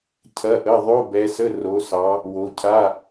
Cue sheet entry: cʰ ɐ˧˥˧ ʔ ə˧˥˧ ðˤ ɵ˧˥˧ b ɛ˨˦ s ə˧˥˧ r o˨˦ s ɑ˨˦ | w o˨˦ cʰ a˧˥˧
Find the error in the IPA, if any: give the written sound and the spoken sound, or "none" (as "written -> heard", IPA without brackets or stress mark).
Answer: ɵ˧˥˧ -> o˧˥˧